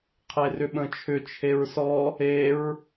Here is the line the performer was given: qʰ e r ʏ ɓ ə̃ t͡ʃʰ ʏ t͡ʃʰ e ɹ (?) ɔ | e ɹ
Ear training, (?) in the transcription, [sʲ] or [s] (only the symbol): s